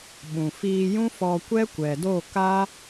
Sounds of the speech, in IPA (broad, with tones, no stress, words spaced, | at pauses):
ɓũ˨ fiː˧ jũ˦fɔ˧ kʷɛ˦kʷɛ˨do˦˨ka˦